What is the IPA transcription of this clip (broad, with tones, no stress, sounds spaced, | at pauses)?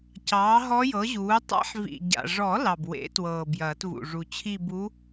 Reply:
c ɑː˩˥ ɦ ɔ˧˥ j ɤ˩˥ ʑ uː˩˥ tˤ a̰˧˥ ħ v ḭ˨˩ ɟ a̰˨˩ ʐ ɔ˨˩˦ l ɑ˨˩ b w ḛ˨˩˦ t w ɤː˨˩ b j ɐː˨˩˦ t v ṵ˨˩ ʐ u˨˩ t͡ɕʰ i˥˧ b u˧˥